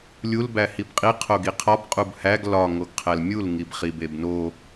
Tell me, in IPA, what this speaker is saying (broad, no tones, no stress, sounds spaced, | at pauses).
lʲ u l b æ h i b qʼ i qʰ o ɡ i qʰ ɒ b qʼ u b h æ ɡ l ɒ ŋ o ɡ qʰ æ l mʲ u l ŋ i b χ i b e b n o